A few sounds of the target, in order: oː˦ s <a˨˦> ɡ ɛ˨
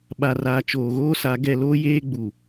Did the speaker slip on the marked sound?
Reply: no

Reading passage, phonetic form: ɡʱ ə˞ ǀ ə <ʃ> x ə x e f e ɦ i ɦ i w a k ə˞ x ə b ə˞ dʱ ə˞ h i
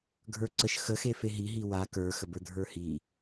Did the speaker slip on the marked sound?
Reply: no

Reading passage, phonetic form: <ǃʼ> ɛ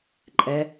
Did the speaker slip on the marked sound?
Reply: no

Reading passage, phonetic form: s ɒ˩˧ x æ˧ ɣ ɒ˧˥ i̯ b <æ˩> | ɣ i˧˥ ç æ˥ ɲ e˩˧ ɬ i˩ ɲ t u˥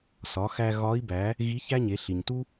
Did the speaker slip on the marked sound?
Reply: yes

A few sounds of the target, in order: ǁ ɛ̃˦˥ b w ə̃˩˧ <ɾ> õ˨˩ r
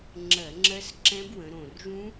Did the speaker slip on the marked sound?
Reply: no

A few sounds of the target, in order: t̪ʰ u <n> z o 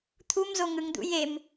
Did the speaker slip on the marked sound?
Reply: yes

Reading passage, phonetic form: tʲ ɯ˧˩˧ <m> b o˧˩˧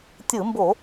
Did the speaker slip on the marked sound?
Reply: no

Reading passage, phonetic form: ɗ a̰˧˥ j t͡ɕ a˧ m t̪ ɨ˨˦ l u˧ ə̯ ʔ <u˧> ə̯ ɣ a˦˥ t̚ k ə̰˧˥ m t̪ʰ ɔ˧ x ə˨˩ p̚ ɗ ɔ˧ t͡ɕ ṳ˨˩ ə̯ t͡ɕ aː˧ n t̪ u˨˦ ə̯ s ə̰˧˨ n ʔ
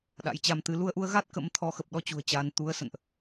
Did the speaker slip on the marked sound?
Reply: no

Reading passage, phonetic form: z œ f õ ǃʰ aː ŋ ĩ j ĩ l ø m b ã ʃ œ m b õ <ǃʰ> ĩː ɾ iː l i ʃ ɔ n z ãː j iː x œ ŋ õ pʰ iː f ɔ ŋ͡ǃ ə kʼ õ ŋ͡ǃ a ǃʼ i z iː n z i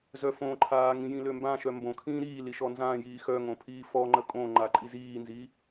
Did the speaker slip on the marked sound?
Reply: yes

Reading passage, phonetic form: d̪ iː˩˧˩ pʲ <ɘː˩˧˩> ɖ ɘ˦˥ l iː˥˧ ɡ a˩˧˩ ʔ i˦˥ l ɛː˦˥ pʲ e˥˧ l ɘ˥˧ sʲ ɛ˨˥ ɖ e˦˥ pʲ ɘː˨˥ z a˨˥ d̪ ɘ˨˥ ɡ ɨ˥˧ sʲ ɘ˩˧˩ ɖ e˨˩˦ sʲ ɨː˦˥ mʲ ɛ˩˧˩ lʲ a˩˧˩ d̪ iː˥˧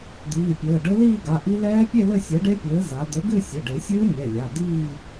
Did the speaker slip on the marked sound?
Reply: no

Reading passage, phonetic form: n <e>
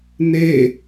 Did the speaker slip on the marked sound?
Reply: no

